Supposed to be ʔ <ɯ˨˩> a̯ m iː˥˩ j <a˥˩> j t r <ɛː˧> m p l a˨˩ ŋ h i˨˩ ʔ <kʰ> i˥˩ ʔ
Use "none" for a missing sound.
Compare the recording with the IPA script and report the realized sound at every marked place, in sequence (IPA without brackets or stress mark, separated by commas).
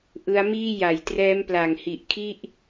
ɯ˦˥, a˨˩, ɛː˦˥, kʰ